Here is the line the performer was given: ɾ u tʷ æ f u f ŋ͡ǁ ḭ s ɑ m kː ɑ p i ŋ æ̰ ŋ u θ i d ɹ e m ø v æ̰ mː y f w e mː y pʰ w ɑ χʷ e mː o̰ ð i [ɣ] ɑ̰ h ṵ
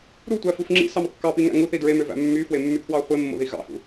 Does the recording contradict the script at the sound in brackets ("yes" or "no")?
no